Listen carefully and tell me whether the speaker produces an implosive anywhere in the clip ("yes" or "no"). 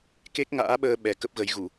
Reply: yes